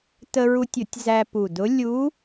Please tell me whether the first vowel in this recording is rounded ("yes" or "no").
no